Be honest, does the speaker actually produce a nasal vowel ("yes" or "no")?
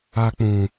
yes